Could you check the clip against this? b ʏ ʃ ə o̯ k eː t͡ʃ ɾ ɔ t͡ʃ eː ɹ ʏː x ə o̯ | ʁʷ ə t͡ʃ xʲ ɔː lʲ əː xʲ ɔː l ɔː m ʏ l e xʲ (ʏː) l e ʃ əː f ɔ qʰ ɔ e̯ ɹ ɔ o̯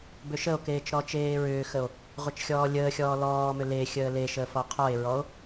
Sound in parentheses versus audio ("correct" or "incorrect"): incorrect